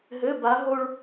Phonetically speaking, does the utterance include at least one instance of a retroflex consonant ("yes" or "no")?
yes